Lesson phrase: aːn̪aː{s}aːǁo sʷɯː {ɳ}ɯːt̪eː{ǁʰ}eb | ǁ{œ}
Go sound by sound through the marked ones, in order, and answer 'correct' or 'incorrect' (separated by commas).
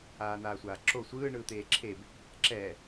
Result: incorrect, correct, correct, incorrect